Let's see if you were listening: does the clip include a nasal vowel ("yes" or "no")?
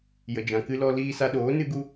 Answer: yes